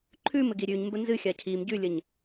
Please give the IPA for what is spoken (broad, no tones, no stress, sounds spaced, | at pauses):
ǃʰ ʉ m ɘ ɡ i ɾʲ ʉ ɲ m b ə n z ɨ xʲ a cʰ i m ɟ ʉ lʲ ə ɲ